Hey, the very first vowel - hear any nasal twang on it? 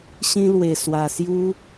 yes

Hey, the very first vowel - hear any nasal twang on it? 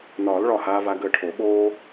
no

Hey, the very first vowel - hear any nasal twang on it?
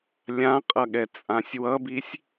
yes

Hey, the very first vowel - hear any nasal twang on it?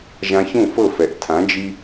yes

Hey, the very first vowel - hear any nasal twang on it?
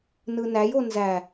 no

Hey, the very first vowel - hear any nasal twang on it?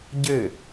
no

